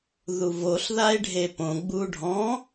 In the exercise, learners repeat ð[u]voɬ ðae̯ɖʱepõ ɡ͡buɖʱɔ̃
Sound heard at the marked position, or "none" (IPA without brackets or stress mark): u